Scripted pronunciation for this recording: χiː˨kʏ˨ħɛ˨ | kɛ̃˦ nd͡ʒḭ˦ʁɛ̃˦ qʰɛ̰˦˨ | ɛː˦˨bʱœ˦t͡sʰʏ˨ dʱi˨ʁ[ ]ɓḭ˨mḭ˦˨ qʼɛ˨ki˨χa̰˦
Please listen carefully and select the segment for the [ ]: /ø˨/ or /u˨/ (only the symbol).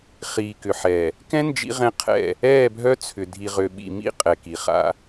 ø˨